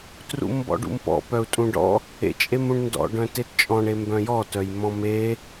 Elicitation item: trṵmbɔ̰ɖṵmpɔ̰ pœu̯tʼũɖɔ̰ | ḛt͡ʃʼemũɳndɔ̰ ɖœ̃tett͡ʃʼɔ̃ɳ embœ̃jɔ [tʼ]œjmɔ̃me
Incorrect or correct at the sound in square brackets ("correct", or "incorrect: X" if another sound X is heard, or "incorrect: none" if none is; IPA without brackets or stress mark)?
incorrect: t